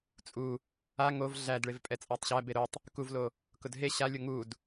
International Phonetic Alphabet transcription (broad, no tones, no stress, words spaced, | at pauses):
t͡sʼu | a ŋov ɮæd ɭevpʼɛt͡sʼætˤɕæ beɾotˤ | kuvlo | kʊdɦe ɕalʲo ŋud